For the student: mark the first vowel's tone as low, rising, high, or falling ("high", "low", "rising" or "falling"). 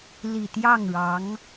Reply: low